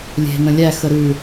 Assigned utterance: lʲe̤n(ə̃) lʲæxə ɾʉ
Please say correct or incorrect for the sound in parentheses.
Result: correct